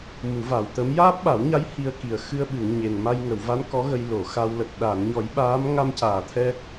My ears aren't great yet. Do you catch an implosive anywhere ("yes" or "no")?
yes